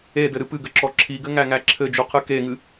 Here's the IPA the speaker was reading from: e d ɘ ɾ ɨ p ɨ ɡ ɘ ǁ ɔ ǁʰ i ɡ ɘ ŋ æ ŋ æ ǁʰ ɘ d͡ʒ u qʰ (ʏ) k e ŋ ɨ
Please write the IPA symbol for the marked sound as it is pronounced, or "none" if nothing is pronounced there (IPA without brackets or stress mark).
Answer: ɨ